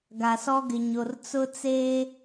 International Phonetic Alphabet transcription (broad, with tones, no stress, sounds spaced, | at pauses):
ɡ a˨ s ɔ˦ ɡ ɪ˨ ɲ o˨ r t͡s ʊ˦ t͡s eː˦